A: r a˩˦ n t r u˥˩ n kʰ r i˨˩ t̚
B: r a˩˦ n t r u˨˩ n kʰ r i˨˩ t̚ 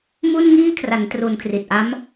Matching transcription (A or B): B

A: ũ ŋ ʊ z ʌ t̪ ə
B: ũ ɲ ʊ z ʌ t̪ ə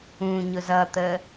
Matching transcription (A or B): B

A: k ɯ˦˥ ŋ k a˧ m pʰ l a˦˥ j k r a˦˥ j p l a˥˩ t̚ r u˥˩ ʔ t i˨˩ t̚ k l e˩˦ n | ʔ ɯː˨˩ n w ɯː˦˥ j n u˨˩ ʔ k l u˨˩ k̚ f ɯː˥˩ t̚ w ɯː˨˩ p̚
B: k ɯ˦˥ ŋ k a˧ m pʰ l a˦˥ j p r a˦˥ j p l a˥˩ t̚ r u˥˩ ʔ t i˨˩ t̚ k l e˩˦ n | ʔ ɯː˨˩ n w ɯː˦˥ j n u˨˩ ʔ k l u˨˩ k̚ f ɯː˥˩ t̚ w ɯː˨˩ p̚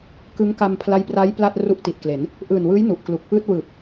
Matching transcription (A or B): B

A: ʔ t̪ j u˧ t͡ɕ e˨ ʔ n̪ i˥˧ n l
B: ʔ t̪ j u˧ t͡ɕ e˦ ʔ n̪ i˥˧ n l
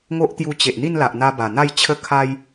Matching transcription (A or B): A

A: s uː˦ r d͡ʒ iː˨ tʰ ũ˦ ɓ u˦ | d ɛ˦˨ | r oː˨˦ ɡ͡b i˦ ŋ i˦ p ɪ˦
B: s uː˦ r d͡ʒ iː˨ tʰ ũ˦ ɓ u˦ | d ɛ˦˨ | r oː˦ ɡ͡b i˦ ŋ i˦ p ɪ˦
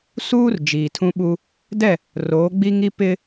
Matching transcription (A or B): A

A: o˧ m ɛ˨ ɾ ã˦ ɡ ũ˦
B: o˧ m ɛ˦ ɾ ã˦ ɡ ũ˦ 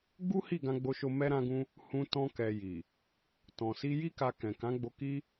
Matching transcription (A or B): B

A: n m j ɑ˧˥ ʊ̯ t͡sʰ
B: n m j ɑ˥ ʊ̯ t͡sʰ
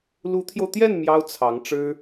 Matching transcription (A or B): B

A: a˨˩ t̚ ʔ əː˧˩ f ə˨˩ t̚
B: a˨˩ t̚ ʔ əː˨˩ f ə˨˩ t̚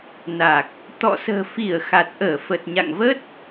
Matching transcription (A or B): A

